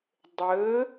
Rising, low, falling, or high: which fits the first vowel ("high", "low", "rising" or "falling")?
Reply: rising